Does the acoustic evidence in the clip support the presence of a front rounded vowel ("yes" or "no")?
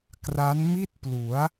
no